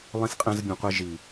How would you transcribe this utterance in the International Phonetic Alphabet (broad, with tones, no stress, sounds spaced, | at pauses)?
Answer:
lˠ ĩ˦ s qʼ ɛ̃˦ z bʲ ũ˧ qʷ i˦ ʒ i˨